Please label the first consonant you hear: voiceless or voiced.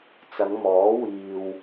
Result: voiceless